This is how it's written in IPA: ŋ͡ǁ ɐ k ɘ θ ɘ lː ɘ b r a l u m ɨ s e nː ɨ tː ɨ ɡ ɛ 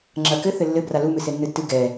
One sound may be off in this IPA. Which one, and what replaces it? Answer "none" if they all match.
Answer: none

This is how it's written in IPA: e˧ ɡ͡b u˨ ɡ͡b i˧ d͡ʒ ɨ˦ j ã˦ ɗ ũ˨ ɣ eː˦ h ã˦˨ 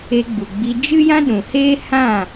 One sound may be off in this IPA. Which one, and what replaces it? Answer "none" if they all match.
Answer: ɣ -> h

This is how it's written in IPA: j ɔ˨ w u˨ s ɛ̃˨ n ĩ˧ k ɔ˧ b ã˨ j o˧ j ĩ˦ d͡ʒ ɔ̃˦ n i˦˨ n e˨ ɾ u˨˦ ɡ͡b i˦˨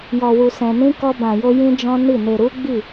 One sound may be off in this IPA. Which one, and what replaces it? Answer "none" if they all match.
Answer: none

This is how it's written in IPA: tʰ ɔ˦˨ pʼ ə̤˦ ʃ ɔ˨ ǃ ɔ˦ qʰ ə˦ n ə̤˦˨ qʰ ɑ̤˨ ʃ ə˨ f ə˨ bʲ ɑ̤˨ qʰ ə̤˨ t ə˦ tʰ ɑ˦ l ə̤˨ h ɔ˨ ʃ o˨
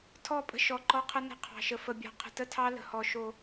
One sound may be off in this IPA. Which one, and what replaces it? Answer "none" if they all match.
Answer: none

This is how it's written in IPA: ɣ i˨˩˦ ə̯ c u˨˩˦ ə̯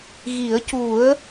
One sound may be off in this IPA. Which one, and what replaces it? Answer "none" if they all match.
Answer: none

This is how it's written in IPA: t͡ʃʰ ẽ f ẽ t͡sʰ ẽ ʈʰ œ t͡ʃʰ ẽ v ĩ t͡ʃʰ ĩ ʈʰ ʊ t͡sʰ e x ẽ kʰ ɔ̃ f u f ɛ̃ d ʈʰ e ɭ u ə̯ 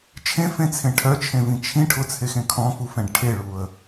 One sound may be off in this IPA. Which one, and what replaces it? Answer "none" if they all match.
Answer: d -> ɖ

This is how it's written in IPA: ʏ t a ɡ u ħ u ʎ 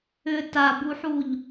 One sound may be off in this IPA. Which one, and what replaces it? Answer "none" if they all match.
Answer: ɡ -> b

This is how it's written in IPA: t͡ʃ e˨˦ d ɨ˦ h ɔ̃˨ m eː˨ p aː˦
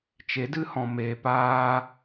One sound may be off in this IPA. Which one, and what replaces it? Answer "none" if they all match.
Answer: none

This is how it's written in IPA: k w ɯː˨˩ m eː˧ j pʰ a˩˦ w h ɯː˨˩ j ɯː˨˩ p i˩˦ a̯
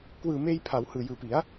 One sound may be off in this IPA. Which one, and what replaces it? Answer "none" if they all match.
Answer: none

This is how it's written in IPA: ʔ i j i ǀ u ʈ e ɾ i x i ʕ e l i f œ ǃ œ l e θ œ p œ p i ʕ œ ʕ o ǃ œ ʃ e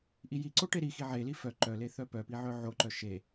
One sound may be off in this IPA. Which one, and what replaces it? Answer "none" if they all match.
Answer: u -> o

